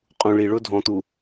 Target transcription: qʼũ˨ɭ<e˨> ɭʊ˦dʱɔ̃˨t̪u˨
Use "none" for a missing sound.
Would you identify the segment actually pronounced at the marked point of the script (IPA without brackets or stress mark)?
i˨